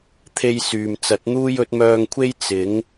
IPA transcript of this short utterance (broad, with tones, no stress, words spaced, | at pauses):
t̪ʰe˥jsyː˨m t͡sɐ˨˥t̚n̪uː˥jɵ˨˥t̚ mœː˧ŋkʷʰe˥j t͡sɪ˨˥ŋ